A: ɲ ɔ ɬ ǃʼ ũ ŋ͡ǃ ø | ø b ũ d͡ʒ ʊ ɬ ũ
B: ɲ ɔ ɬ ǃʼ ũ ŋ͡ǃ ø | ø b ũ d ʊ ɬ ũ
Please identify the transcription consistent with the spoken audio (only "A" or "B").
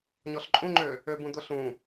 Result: B